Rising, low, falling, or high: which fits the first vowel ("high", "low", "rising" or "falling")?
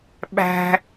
high